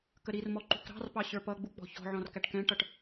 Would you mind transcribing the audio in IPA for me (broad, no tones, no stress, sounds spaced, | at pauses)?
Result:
k ə ɾ i r m ɔ ǃ ṳ k ɾ ɑ̤ r p ɑ ɕ ə˞ p ʌ ɡ͡b u k͡p ɔ̤ ç ɔ̤ ʕ ɔ̃ r k æ ʈ k ɛ̃ ʈ ʌ ʈ